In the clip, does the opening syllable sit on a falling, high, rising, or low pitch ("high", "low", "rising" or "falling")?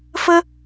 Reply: high